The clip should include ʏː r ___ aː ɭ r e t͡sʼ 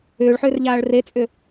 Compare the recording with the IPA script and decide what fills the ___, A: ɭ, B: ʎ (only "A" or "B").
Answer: B